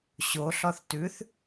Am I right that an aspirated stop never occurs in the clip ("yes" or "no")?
yes